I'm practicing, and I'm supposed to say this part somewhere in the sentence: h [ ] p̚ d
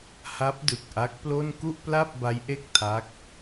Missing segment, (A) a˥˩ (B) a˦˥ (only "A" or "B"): B